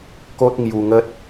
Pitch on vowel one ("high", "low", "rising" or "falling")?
high